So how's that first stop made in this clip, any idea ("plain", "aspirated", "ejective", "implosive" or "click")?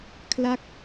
aspirated